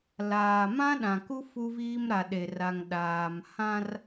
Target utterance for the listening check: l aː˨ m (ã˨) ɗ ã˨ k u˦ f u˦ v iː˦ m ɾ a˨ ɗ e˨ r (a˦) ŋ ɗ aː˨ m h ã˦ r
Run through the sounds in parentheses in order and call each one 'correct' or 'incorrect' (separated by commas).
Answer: incorrect, incorrect